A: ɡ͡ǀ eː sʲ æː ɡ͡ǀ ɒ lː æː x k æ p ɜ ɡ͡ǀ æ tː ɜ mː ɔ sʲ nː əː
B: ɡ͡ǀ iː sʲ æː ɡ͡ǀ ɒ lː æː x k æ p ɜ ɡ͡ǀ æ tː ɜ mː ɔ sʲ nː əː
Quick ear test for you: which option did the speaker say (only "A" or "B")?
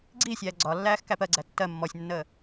B